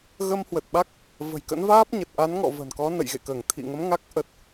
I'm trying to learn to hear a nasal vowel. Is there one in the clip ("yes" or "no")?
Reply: no